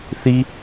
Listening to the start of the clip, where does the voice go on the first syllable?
high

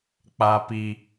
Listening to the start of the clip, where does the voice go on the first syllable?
low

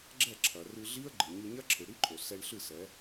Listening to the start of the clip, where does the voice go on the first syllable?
falling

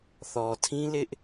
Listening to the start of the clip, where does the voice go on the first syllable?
low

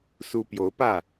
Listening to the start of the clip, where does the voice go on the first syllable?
high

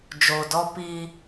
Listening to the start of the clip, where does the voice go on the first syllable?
low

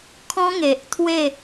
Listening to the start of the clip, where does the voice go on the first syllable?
high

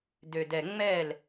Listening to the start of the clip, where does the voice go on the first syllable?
low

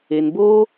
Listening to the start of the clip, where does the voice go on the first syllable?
low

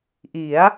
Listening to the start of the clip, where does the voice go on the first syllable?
rising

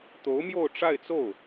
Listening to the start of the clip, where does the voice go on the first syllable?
rising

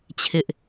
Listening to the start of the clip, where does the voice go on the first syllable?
high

